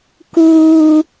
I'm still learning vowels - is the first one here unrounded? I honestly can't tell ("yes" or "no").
no